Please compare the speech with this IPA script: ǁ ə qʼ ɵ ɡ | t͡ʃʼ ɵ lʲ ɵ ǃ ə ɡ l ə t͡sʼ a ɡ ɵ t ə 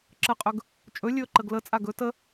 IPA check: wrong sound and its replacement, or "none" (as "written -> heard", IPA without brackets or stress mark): none